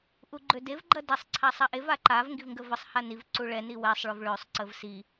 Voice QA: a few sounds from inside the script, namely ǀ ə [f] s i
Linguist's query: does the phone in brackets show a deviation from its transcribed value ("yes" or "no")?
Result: yes